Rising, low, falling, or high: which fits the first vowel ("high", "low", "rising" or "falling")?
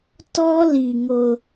high